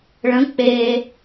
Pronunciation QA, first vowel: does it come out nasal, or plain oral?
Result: nasal